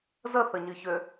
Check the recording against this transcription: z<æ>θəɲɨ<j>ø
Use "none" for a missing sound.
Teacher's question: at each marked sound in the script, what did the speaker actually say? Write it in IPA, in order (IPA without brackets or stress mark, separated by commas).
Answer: ə, ç